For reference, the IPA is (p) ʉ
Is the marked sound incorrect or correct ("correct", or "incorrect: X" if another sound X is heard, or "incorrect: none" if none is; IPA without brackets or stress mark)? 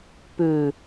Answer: correct